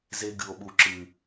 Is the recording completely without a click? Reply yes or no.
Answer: no